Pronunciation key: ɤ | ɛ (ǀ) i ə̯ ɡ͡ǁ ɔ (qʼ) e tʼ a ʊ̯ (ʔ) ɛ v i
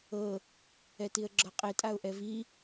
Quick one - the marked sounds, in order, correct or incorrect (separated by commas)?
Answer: incorrect, correct, correct